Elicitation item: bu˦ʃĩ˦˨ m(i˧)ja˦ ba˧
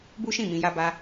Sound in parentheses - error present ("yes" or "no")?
yes